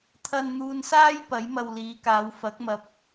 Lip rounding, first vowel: unrounded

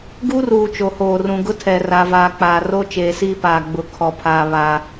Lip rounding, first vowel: rounded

